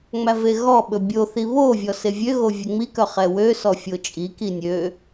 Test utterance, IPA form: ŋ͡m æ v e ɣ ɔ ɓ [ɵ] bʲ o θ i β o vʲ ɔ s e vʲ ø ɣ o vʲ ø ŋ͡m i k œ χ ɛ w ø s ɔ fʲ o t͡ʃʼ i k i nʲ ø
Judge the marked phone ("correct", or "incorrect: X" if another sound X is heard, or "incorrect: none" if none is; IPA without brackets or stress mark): correct